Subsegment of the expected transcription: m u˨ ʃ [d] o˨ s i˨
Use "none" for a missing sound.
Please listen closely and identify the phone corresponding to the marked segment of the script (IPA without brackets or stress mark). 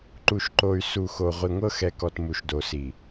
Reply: d